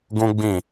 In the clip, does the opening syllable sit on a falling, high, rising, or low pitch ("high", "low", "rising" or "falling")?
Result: high